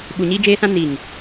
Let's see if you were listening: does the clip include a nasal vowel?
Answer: yes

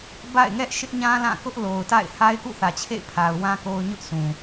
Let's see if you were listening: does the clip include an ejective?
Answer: no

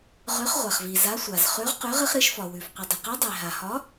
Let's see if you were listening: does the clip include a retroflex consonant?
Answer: no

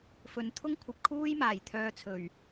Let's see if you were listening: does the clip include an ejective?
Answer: no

